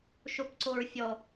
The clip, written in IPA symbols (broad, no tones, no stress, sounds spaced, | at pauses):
ʃ o p ǀ o ɹ fʲ ɔ